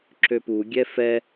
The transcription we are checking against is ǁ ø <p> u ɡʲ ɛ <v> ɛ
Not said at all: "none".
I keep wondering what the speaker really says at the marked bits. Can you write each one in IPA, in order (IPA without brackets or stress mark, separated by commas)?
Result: p, f